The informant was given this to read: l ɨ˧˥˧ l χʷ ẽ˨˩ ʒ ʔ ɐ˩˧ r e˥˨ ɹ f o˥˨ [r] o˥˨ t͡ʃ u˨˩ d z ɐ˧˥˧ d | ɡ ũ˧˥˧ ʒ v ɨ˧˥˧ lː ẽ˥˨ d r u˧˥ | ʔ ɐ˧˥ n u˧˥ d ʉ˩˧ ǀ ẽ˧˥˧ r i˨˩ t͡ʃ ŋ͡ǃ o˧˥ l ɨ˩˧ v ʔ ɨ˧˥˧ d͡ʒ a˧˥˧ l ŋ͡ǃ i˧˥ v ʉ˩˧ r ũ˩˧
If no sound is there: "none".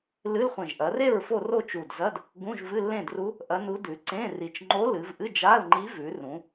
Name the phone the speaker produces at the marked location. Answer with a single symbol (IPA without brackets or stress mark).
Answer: r